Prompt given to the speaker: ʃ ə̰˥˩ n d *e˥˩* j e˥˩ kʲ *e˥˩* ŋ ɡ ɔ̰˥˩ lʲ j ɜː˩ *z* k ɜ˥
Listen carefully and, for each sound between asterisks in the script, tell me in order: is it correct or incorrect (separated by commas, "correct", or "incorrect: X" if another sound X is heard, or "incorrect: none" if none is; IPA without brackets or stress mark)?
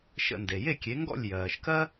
incorrect: e˩, incorrect: e˩˥, incorrect: ʃ